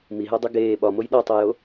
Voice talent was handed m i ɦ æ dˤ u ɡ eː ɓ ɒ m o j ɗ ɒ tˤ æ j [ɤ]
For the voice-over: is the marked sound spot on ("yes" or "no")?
no